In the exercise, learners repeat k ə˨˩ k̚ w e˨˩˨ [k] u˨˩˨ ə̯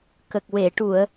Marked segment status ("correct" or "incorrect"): incorrect